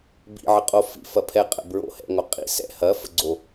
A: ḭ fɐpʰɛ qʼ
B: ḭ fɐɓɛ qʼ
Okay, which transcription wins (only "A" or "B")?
A